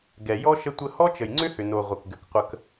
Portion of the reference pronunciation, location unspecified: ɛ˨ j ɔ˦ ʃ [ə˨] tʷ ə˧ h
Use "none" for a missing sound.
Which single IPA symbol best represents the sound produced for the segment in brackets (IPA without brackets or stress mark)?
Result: ə˧